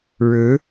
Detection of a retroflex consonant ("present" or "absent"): present